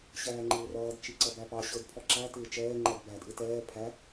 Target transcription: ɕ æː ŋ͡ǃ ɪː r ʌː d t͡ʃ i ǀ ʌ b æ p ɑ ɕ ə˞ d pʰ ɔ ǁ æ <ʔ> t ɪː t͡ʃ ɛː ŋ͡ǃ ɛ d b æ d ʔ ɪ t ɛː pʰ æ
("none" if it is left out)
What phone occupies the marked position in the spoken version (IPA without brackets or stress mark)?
none